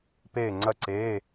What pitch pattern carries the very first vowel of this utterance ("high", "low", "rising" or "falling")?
falling